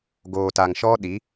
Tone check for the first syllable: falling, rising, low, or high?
low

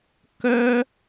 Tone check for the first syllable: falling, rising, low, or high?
high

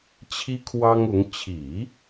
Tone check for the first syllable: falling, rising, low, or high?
high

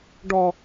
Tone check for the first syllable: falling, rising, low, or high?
high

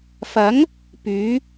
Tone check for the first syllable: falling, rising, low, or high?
rising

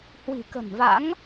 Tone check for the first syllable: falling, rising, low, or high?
low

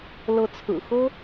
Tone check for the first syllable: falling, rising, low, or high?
rising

